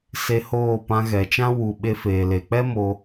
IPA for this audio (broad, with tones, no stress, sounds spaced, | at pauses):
s e˧ h oː˦˨ p ã˧ ɣ ɛ˨ t͡ʃ ã˦ w u˨ ɓ e˧ f eː˨ l e˨ k͡p ɛ˦ m o˧